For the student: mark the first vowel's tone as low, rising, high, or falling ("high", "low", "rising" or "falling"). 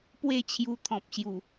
falling